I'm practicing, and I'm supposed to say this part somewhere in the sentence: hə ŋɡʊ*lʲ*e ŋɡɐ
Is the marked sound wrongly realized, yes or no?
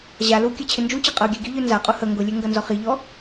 no